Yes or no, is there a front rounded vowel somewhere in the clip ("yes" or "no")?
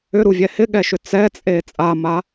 yes